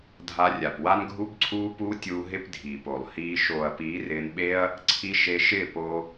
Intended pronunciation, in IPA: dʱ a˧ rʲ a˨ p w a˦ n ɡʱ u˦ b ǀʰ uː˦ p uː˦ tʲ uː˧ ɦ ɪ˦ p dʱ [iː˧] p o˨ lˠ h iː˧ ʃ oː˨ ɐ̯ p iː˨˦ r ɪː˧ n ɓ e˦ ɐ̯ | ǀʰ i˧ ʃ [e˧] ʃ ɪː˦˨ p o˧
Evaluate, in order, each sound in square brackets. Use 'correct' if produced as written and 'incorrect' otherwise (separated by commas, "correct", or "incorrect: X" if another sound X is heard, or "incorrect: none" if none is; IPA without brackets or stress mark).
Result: incorrect: iː˨, correct